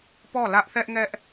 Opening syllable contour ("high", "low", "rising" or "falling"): falling